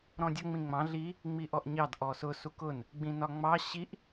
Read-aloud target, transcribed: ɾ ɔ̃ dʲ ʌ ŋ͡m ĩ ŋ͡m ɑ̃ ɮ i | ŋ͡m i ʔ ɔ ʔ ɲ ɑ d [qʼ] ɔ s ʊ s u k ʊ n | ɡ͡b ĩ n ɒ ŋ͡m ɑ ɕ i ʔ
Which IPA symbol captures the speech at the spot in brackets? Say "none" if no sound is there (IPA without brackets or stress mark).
ʔ